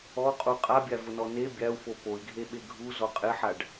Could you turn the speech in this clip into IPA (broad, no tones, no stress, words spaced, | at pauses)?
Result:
ɔqʼu qʼabʲavʊnɔ ne bʲau̯fo poi̯ɡʱeɓe ɡʱuzɔ qʼɪħaɖ